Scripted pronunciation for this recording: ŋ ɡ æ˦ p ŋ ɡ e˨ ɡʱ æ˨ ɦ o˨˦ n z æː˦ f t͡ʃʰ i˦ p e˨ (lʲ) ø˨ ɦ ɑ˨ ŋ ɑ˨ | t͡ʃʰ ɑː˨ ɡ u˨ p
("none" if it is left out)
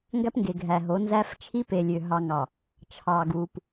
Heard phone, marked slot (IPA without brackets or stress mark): lʲ